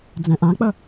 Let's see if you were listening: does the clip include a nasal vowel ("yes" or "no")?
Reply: yes